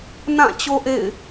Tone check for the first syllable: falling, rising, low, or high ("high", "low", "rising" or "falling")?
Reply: falling